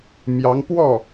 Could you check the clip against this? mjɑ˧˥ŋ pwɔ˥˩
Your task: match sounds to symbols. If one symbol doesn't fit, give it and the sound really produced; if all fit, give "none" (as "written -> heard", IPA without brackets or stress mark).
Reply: none